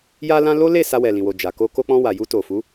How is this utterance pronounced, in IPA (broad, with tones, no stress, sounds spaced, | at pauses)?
j a˦ l ã˦ l o˦ l e˦˨ s a˧ w ɛ˨ l ĩ˨ w o˨ d͡ʒ a˨ k o˧ k o˧ k͡p ɔ̃˧ w a˨ j u˧ t o˨ f u˨˦